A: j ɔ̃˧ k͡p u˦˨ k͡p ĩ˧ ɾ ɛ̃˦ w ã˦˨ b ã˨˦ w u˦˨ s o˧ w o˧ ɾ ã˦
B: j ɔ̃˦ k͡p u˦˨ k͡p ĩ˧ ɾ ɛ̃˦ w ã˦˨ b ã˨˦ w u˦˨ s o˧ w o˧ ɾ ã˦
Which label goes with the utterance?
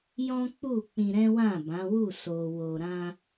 B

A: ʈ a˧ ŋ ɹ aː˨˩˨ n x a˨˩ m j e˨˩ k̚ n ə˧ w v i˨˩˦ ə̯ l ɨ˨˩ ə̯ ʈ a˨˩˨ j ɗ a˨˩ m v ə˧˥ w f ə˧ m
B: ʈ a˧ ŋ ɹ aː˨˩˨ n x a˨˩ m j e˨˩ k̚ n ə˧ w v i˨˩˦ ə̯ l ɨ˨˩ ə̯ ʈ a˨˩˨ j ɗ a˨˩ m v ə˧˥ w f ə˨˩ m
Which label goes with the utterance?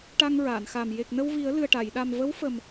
B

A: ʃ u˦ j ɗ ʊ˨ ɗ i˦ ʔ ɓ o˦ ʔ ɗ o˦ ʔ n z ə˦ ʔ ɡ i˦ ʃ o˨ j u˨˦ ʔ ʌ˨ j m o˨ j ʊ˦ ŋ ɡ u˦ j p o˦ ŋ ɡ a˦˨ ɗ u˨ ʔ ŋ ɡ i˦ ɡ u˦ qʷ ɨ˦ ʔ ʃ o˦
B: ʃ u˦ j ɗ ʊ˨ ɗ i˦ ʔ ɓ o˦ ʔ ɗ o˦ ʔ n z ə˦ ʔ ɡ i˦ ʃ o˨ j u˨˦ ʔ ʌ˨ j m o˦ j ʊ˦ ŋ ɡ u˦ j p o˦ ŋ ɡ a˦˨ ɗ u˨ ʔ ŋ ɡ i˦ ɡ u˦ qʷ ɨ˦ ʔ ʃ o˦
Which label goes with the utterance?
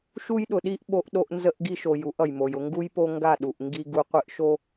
A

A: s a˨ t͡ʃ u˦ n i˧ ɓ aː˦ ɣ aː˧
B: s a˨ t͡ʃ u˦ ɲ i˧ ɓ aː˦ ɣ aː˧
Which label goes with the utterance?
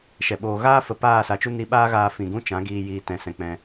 A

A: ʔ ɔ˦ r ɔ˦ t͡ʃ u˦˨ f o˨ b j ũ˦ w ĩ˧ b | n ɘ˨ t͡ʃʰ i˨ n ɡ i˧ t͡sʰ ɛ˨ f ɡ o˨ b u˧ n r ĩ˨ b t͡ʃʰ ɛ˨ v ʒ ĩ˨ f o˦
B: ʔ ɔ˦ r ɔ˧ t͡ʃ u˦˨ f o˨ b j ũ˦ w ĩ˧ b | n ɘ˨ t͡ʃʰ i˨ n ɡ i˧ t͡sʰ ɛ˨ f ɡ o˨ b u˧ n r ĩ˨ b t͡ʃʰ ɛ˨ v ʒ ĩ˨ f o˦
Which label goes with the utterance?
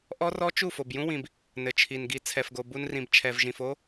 A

